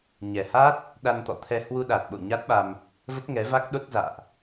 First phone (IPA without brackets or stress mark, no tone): ɲ